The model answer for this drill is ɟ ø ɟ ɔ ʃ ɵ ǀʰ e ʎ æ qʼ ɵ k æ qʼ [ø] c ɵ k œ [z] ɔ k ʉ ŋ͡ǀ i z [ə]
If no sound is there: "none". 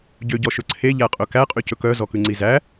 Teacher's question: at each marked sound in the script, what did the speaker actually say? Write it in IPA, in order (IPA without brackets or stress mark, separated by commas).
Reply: y, z, æ